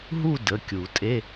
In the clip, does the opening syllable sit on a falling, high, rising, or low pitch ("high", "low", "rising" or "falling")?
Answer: falling